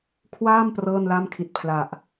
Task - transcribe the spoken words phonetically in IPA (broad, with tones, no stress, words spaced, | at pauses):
kʰwaː˥˩m prɤː˥˩nla˥˩mkʰi˨˩t̚pʰla˨˩ʔ